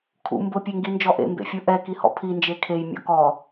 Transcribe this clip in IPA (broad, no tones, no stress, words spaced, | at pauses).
kʰṵ mbʊ pʲeŋɡind͡ʒɔʔḛ mbḛfʲuʔɛ kihɔ̰pʰi nd͡ʒekʰej mʲɔ̰kɔ